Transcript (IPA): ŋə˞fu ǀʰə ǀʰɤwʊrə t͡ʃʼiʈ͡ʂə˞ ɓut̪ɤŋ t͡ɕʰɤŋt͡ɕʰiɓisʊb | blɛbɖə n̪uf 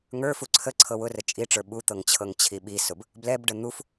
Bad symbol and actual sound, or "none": none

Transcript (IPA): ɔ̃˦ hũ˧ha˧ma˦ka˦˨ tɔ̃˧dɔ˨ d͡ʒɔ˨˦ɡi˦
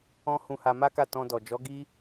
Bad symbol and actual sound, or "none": none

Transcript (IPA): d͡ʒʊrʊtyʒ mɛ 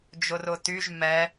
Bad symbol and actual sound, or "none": none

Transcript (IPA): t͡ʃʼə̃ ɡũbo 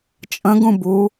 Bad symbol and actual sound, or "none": o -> u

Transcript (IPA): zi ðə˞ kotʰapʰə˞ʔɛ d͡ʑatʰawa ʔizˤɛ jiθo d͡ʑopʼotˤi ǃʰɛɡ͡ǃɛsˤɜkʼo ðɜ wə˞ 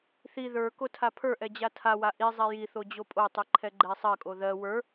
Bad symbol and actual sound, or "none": z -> θ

